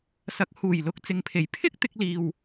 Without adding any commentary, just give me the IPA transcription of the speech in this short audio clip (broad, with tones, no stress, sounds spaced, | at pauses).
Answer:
s ɐ˨˥ k̚ h uː˨˩ j l ʊ˨˥ k̚ t͡s ɪ˨˧ ŋ pʰ e˨ j pʰ ɪ˥ k̚ t̪ ɪ˧ k̚ l iː˨ w